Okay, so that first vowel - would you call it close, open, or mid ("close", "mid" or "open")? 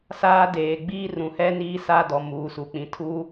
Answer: open